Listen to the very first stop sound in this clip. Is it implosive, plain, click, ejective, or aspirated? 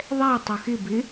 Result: plain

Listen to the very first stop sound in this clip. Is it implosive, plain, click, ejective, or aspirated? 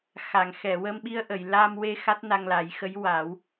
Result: implosive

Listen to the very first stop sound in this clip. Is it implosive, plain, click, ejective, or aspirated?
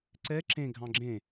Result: click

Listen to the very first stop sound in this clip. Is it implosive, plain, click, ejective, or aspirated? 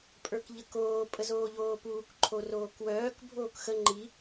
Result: ejective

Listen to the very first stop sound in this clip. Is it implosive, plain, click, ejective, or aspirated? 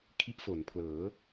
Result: aspirated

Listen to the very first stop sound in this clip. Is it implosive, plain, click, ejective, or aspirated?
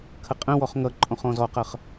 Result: aspirated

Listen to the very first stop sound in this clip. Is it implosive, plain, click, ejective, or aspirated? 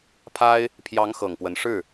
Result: aspirated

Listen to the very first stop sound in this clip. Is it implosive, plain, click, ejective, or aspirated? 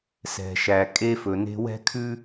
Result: ejective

